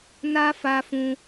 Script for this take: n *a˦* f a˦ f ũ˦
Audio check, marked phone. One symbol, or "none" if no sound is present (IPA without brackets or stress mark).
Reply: a˦